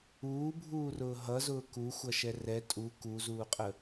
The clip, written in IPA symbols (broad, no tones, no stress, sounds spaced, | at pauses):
uː bʱ uː r ʊː ɦ ʌ z ʊː k u xʷ ʌ ʃ ɛ r ɛ tʼ u k u z uː qʼ ə